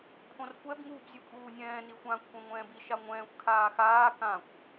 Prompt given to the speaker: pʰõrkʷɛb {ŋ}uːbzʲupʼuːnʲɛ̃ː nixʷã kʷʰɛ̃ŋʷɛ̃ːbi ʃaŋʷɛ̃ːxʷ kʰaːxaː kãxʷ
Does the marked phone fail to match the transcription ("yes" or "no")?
no